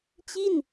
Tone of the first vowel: falling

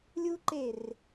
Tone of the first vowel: high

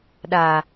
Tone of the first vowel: low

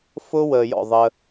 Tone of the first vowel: high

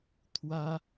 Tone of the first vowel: high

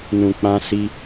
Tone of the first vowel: low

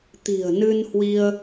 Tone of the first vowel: low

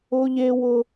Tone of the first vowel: high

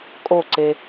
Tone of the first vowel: falling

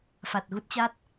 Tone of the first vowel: low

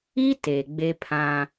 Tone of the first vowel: high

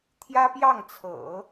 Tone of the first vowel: high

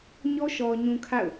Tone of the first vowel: high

